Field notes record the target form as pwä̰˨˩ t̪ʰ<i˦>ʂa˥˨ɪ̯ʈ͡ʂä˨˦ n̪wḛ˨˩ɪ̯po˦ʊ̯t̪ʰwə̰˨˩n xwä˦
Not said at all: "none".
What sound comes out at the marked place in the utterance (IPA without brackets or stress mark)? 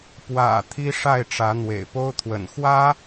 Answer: i˦